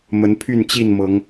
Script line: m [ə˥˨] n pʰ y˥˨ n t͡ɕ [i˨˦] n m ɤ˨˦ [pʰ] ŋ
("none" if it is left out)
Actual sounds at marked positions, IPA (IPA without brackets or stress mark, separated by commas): ə˨˦, i˥˨, none